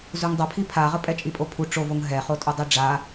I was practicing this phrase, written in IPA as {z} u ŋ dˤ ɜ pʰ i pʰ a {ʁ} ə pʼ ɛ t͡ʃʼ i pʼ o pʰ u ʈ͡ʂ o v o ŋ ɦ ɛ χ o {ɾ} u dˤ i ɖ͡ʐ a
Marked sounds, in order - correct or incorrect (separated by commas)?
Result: correct, correct, incorrect